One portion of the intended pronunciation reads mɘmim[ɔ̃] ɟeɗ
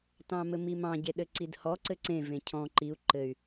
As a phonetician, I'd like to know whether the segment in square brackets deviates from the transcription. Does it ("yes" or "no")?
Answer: yes